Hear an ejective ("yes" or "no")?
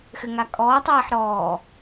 yes